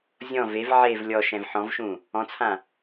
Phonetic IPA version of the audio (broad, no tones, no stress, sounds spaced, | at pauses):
zʲ ɔ̃ v e v ʕ e v lʲ ɔ ʃ ɛ̃ v ħ ɔ̃ v ʃ ũ | ɔ̃ t͡sʰ ã